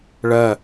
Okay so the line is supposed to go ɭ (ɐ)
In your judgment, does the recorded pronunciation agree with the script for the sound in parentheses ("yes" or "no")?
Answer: yes